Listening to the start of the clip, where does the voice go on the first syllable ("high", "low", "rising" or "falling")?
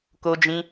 high